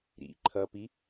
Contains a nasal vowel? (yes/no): no